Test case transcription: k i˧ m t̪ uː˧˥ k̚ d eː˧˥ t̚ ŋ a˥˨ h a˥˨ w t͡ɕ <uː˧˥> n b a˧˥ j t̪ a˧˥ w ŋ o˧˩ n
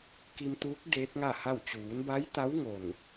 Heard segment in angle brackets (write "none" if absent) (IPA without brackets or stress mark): uː˩˧